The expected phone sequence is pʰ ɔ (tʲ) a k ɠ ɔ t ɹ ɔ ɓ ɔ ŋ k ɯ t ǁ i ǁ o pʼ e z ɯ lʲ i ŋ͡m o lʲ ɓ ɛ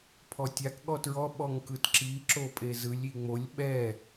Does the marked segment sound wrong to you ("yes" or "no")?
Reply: no